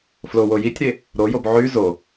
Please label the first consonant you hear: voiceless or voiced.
voiceless